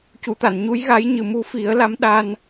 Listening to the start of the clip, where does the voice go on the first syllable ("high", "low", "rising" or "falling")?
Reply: low